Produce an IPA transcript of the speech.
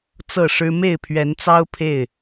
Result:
t͡sɤ˥˨ʂɻ̩˦ me˥˨ɪ̯pʰɥɛ˨˦nt͡sɑ˦ʊ̯ pʰe˥˨ɪ̯

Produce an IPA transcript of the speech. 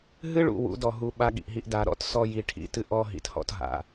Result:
ɦɨ˦ɭṵ˨ wṵ˨˦dɔ˨ ɦu˨ ɓa˦ɠḭ˨ʔɦi˦ʔ da˨ ɾɔ̰˦tsɔ˦ ji˨ʈʰḭ˨tɨ˦ʔɔ˦ ɦḭ˨thɔ̰˦tɦa̰˨

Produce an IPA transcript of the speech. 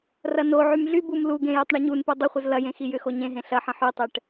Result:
rɐnoʕym ɮybum luɡẽ jʏtˤɳiɲunpu dˤʊχʷəz lɐjẽ xijʏxo ɲẽɦẽ ɬɐħə̃ ħytˤɛʈ

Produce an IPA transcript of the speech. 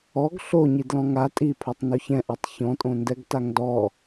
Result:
ɔɡ ɬoɲi dlɔ̃ŋa tʼipʰotˤ noçɛ̃ʔɛtˤ çɔ̃tʼõndɛɡ taŋdɔ

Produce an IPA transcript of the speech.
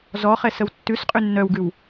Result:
zɔχɛs əwtːʉsqʼʉ nːœwɡʉw

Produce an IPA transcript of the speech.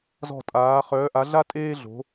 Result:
zɔ̤˦˨tʼaː˨˦ χœː˨˦ʔa˨˦ɮa˥ tʼeː˥ɮo̤˨˦

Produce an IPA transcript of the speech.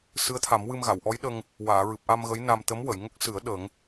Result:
sɨ˧˥ə̯t̪ʰa˨˩˦mwɨ˧m ɣa˨˩˨wʔɔ˧˥jɗə˧ŋ | waː˨˩˨ɹɨ˨˩p̚ʔa˧m ɣə˧˥jna˧m t̪ə˧˥mwə˨˩˨jŋə˦˥k̚sɨ˨˩˦ə̯ ɗə˨˩˦ŋ

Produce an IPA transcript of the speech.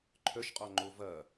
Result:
ǃʰœʃqʼɔŋ͡ǃo vɐ

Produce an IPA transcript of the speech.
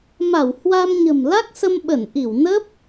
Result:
ma˧˩w hwa˧mɲə̤˨˩m la˦˥k̚sə˧mɓə˧˩n ʔi˧˩wnə˦˥p̚

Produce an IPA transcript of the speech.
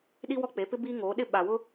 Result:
ɗi˦wɔ˦k͡pe˨˦pɪ˦ biː˦ŋoː˨˦ɗɪ˦ ɓa˨wʊ˦

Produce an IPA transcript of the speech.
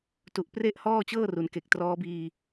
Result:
tu˨˩ʔpre˥˩ʔ hɔː˥˩t͡ɕɤː˥˩ru˩˦nke˨˩k̚ trɔː˦˥biː˧

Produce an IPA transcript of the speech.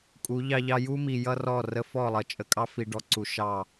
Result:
kʼu˨˦ʎɑ˦ʎɑ˦ ju˦mi˨ jʌ˦rɔ˦˨rə˦ fɔ˦˨lˠʌ˨ t͡ʃʼə˨kʼɑ˦fi˨ɖɔ˨ ǀu˨ ʃɑ˦˨

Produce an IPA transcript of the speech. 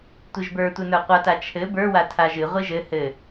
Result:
tʷiʒbə˞tʷɘnə˞ qʷata t͡ʃʰɘ bə˞wa tʰaʒɨ ʁʷiʒɘ hɘ

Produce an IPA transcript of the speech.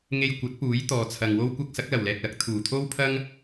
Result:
ŋe˧jkʷɐ˨˥t̚ puː˨˥jt̪ɔː˨ t͡sʰɐ˨ŋwo˥wkʷɐ˥k̚ sɐ˨˥k̚lɐ˨˩wlɛː˨k̚lɐ˨˥k̚ t̪ʰuː˨˩t̪ʰo˥wpʰɐ˥ŋ

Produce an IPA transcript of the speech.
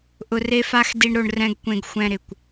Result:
ʔʊ˧re˦fa˦x di˦ɳɾo˧ɳ rɛ̃˦ɡkʷẽ˧ɡ xʷɛ̃˧ ɾɪ˨kʷ

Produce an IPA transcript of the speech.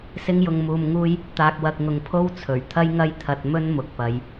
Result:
sɪ˥ŋjʊ˧ŋmuː˧mŋuː˥j | t̪aː˨k̚wɐ˨k̚ŋʊ˨ŋ pʰo˥wt͡sʰɵ˨˩ɥ t̪ʰɐ˥jŋɐ˥jt̪ʰɐ˧t̚ mɵ˥n mʊ˨k̚pɐ˨˧j

